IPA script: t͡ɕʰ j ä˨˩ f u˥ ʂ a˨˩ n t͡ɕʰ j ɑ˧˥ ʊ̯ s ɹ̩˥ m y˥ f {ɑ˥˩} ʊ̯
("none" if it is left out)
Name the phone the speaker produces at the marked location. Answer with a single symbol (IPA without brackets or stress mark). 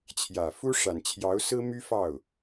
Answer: ɑ˥˩